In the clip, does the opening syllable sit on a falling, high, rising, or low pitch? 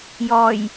low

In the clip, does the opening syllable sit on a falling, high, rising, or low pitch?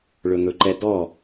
low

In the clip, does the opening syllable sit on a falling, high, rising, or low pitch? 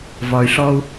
low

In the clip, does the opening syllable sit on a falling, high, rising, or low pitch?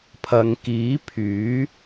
low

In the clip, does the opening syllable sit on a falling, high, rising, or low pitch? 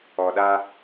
low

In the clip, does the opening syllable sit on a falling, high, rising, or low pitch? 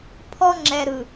high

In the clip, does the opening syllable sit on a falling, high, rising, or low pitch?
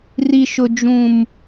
low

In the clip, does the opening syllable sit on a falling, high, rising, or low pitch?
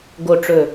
low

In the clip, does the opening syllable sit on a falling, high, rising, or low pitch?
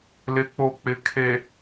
rising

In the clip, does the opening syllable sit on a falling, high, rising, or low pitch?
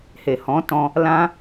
low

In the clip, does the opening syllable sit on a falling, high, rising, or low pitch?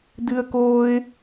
high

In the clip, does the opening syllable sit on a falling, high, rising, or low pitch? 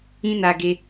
high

